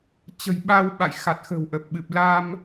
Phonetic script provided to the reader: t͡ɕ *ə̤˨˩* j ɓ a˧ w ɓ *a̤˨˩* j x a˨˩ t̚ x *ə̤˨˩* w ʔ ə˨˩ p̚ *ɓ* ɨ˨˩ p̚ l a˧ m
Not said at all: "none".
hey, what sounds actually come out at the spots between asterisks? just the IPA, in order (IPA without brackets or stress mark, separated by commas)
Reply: ə̤˨˩, a̰˧˨, ə̤˨˩, ɓ